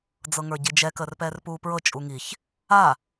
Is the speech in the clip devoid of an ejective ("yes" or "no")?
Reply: no